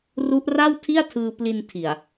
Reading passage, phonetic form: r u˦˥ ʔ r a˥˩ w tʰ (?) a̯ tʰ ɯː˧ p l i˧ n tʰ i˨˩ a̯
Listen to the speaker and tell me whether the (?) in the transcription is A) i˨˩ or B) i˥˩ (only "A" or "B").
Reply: B